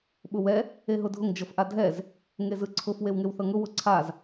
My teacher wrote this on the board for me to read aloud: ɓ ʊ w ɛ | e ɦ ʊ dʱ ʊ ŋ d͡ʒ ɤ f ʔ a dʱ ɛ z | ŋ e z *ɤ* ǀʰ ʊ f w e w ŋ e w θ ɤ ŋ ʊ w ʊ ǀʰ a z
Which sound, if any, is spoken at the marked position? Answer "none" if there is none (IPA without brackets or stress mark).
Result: ɯ